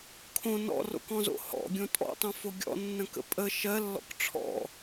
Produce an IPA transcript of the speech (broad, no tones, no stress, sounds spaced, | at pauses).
kʰ õ n ɔ̰ r o̰ k ɔ̃ z o̰ h ɔ̰ ɡʲ õ tʼ ɔ̰ tˤ õ f o ɡʲ ɔ̰ nː ə̃ k ə̰ pʼ ə ʃ ɜ lː ɔ̰ k ʈ͡ʂʰ ɔ̰